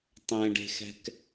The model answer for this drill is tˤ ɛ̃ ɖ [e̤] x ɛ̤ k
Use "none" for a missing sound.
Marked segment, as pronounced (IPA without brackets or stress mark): e̤